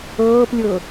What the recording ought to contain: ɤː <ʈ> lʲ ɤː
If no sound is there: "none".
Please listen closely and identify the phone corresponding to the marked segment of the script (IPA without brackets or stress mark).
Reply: p